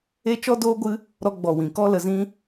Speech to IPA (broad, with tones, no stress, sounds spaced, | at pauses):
e˦ t͡ʃ ɔ˦ d oː˦ ɡʷ ɨ˦ | ɾ ɔ˧ ɡ͡b ɔ˨ w ĩ˨ k ɔ˦ l ə˧ z ĩ˦